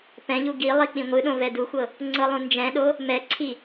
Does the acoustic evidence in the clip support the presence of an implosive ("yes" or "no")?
yes